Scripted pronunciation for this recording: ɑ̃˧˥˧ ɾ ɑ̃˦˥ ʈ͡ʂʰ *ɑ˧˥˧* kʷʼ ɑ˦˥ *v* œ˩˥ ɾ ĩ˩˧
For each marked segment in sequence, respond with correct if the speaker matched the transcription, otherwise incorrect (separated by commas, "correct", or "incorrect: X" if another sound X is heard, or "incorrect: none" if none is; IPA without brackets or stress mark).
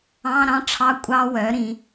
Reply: correct, incorrect: w